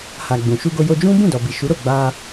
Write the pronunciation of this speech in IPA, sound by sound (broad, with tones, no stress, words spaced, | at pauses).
ha˨ɡ͡bũ˨ ʃu˧ɡo˧jo˧ d͡ʒũ˦ bũ˦˨dɔ˨bi˨ ʃu˨˦ɾo˦˨ ɡ͡ba˧